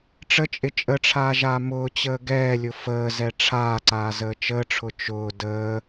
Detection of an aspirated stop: present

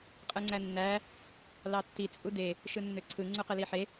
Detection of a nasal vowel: absent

